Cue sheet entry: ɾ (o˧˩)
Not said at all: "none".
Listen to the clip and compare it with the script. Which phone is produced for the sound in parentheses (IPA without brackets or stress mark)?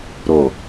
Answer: o˧˩